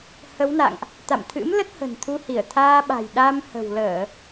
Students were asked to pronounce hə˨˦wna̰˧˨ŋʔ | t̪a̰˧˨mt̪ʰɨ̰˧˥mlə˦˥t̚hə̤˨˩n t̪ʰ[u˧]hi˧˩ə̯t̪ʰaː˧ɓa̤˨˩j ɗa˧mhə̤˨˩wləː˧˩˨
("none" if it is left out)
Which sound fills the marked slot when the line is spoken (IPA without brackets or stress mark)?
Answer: u˧